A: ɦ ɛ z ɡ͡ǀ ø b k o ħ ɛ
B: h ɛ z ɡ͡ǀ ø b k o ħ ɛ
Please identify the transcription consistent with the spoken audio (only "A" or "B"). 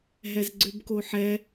A